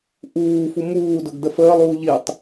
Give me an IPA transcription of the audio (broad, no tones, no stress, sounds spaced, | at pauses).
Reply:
ʔ uː f u m uː d ʊ ɡ d ə f əː lˠ uː ʎ i tˤ